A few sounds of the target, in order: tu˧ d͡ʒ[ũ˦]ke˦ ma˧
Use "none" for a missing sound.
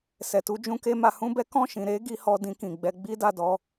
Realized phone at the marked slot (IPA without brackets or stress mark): ũ˦